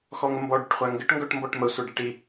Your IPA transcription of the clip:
x ɔ ŋ ə m b ɔ ɖ ə ʈ χʷ æ ŋ ɡ ə ʈ ŋ ɡ ɔ ʈ m b ɔ ʈ m ə sʷ ɛ ɖ ɛ ʈ i

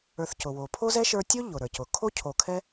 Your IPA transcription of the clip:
ə˞˨ θ c ʊ˩ w o˩ pʰ o˥ z ɛ˥ ʃ ə˞˦ tʲ o˥ ʎ ʊ˩ ɾ ə˞˩ c ʊ˩ kʰ o˥ cʰ o˨ kʰ ɛ˥

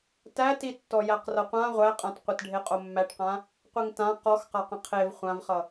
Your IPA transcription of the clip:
t æ t i tː ɔ j æ q r ʌ qʷ ã ʁʷ æ qʼ ã t qʷ ɘ t ɖʱ e qʼ o mː æ ʈ q ã | qʷ i ŋ t ã q ɔ x q a q ə̃ qʰ e v χʷ ã v χ ʌ

